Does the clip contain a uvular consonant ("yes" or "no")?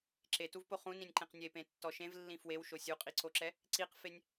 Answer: yes